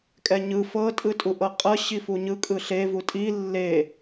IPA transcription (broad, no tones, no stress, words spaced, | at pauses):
kʼɛɲɯ fɤ tʼɯtʼuʔɤqʼɤ ɕifuɲɯ kʼɯɬe vutʼi lːe